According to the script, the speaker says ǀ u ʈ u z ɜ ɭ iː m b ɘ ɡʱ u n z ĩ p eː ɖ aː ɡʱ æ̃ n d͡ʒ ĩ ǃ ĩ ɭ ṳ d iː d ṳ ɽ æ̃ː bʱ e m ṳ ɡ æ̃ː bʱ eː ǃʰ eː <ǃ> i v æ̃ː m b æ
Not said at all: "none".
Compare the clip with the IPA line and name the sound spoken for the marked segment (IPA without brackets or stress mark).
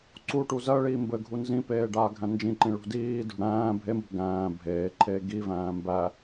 ɡ